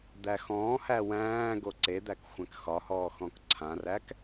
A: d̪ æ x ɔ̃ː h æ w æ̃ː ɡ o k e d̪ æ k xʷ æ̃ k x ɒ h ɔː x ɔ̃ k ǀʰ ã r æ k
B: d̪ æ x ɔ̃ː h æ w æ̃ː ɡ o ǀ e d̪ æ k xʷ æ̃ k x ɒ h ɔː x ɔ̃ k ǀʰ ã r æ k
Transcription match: B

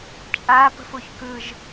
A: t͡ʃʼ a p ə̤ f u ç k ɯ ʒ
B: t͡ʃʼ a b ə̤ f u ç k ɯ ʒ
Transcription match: A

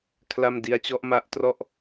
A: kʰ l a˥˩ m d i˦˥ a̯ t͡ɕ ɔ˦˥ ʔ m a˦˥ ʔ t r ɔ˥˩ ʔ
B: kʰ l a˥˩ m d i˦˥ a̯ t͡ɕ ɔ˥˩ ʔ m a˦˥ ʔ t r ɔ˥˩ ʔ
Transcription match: A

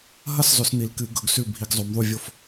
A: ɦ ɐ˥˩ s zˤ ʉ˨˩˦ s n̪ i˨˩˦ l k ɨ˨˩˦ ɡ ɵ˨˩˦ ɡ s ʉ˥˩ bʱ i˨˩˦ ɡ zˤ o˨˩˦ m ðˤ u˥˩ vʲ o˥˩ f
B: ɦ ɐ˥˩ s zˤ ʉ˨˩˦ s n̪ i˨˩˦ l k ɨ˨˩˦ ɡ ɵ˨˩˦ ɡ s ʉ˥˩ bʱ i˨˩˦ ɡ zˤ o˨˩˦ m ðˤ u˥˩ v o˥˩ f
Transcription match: A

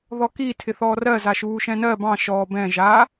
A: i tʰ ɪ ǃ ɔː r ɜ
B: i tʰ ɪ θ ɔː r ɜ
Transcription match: B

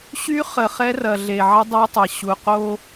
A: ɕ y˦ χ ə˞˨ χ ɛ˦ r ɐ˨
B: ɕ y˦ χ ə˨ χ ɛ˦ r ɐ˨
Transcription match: B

